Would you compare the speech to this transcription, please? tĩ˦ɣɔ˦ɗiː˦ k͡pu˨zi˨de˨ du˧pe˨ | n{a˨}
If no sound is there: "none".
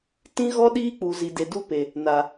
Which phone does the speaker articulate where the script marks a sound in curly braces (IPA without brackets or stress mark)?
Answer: a˨